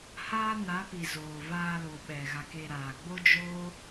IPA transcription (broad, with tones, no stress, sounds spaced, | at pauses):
h aː˦ n a˨˦ p i˨ z oː˨ v aː˧ l o˨ ɓ ɛ˨ ɣ a˨ k e˧ ɾ aː˨ ɡ͡b o˦ d͡ʒ oː˦